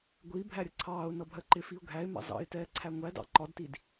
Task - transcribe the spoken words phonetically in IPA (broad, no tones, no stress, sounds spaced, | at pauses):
ɡʷ i bʱ æ ɾʲ ə ǀʰ ɑː ʊ̯ n ʌ bʱ ɜ ǃ ɪ f i ʊ̯ ɡʱ æ ɪ̯ m ɑ̰ z ɑ̰ ɪ̯ t ɛː ǀʰ æ ŋʷ æ d ɑ̰ ǃ ɒ d t i d